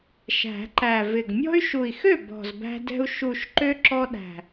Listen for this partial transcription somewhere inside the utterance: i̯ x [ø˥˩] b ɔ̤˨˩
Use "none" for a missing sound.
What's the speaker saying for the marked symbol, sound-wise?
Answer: ø˥˩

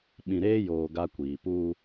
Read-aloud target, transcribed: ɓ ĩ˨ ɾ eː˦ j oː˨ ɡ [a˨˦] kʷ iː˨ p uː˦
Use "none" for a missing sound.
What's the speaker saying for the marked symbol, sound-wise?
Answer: a˦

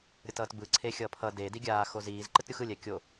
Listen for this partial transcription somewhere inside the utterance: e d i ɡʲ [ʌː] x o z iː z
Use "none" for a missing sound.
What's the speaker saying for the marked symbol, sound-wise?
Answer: aː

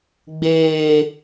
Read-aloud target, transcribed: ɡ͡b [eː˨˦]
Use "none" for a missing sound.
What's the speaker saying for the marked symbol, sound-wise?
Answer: eː˨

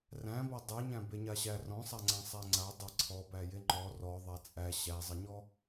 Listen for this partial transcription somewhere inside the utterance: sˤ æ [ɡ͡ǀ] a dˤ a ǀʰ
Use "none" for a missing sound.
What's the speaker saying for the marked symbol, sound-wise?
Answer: ŋ͡ǀ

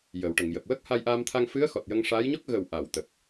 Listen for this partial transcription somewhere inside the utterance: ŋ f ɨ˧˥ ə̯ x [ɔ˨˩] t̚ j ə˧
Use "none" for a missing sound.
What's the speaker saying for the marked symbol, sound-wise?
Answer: ɔ˨˩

